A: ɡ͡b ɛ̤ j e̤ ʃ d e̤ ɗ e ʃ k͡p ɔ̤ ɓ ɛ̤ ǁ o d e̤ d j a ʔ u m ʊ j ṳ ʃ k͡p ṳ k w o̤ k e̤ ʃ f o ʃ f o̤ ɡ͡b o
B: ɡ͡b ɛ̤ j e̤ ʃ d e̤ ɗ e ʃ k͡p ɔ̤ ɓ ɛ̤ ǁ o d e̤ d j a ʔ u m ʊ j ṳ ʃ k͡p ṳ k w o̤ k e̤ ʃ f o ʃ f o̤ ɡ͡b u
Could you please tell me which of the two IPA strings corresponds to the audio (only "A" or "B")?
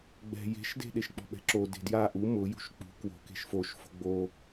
A